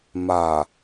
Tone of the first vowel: low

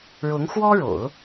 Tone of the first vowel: rising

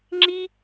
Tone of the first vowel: high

